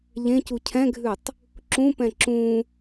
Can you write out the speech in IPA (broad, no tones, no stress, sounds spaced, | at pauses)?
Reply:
ʎ ẽ c u cʰ ɛ̃ ɡʱ ʉ tˤ | ǁ ũ p ɛ̃ ǁ ũ